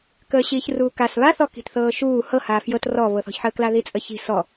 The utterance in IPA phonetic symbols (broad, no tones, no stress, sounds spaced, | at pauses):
k əː ɕ iː ç r uː k a s β a θ ɔ k i̤ t θ ɤː ʃ uː h ɤ h aː f j ɤ t r ɔ β ɤ θ ɔ̤ ç ħ əː k l a ð i t͡sʼ ə ç i̤ s ɔ